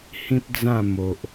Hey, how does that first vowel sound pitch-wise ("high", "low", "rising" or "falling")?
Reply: high